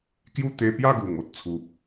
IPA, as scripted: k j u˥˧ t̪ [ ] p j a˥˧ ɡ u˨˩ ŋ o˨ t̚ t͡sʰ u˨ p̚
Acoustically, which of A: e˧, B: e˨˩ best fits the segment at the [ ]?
A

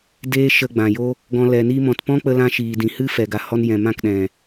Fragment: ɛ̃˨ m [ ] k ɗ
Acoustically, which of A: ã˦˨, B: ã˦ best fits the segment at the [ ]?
A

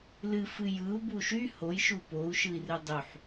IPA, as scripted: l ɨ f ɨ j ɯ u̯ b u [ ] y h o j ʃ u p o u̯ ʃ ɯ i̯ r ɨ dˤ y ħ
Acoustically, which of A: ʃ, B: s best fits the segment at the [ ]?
A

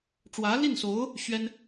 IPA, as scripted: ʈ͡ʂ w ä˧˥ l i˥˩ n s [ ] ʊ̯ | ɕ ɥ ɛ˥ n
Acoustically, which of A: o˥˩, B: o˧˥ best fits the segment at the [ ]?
B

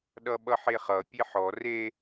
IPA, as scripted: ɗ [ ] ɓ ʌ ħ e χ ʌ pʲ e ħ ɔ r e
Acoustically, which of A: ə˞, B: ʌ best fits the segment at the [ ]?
B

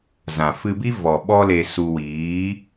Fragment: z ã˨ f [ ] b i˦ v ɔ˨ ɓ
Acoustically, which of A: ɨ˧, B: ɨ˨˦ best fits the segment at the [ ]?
A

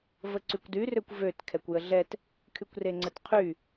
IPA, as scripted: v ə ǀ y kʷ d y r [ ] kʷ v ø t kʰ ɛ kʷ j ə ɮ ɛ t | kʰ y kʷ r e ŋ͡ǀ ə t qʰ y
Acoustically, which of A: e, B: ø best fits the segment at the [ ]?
B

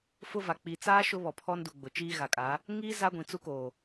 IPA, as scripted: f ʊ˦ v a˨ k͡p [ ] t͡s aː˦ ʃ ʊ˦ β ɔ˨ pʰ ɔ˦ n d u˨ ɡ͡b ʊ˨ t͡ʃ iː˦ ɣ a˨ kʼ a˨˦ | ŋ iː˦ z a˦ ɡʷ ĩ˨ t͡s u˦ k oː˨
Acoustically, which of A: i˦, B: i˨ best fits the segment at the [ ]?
B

